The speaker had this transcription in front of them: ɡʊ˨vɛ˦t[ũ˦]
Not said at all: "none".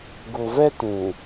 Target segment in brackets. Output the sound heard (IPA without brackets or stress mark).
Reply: ũ˨